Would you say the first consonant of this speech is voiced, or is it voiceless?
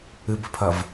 voiced